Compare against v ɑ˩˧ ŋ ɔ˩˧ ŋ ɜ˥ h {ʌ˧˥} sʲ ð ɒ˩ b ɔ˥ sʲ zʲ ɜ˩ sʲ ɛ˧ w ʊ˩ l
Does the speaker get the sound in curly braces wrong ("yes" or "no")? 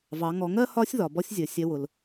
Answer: yes